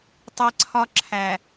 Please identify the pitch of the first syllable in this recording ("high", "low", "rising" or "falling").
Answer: high